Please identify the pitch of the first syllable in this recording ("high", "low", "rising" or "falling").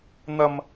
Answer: high